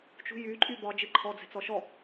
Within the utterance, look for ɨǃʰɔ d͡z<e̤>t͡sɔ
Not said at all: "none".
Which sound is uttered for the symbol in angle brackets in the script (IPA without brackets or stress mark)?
ɛ̤